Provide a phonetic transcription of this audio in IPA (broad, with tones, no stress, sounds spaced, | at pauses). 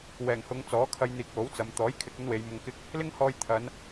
w ɛː˨˩ ŋ h ʊ˨˧ ŋ t͡s ɔː˨˥ kʰ ɐ˧ j n̪ iː˨ k̚ w o˨˥ w t͡s ɐ˨˧ m t̪ ɔː˨˥ j kʰ ɪ˨ k̚ ɵ˥ n w e˨˧ j m ʊ˧ ŋ k ɪ˥ k̚ | l ɪ˥ ŋ h ɔː˧ j t̪ʰ ɐ˨˧ n